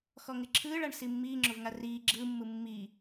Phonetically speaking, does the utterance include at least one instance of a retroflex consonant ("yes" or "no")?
yes